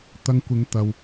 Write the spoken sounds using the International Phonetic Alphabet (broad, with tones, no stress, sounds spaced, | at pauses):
t̪ ɐ˧ ŋ kʷ ɪ˨˧ ŋ t̪ ɐ˨ w